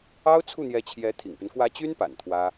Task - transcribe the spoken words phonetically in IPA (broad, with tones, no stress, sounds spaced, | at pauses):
ɑ˥ ʊ̯ t͡sʰ u˥˩ n̪ j ɛ˧˥ t͡ɕʰ j ɛ˧˥ t̪ʰ ḭ˨˩ ŋ p y˦ n k w ä˧˥ t͡ɕ y˥ n p a̰˨˩ n t̪ʰ w ä˥